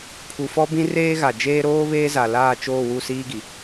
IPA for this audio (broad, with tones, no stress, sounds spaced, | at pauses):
pʰ u˨ f ɔ˦ b ĩ˦ r eː˦ ɣ a˨ d͡ʒ eː˦ ɾ oː˦ β eː˦ z a˨ l aː˦˨ t͡ʃ oː˦˨ w u˦˨ s iː˦ ɡ i˨